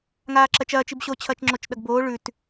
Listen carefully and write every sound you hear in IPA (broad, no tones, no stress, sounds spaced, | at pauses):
ŋ aː ǁ ɐ t͡ʃ ɐː t͡ʃ i b ɕ o t͡ɕʰ ɐː t͡ʃ ŋ͡ǁ o t͡ʃ ɗ ɐ ɡ b oː ɭ ʉ t